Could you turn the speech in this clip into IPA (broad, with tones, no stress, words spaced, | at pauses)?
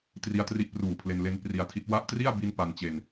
tri˦˥a̯tri˦˥ʔpruː˨˩pʰle˧n le˧n pri˧a̯tʰi˦˥t̚ wa˦˥ʔ tri˥˩a̯ bi˥˩n pa˧nt͡ɕe˧n